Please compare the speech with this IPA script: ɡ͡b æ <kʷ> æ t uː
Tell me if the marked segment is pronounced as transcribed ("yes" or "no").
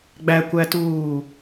yes